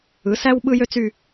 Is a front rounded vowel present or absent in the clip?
present